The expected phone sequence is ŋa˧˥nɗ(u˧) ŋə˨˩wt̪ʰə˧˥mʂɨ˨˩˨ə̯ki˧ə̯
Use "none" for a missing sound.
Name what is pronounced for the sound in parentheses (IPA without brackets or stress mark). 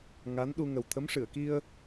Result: u˧